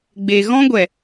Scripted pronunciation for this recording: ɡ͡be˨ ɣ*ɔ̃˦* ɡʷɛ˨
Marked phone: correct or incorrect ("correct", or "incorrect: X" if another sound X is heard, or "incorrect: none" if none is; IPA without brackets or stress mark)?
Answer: correct